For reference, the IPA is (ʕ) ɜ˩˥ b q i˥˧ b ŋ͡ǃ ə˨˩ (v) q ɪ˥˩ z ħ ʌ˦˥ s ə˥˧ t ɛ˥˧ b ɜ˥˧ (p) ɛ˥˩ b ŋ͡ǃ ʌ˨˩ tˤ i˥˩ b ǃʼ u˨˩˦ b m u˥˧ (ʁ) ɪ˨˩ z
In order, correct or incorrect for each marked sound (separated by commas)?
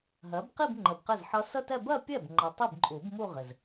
incorrect, incorrect, incorrect, correct